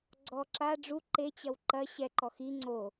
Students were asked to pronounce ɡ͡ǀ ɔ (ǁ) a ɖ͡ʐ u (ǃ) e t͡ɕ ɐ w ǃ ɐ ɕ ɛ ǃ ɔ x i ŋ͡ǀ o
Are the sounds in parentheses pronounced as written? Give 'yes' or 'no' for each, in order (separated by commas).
yes, yes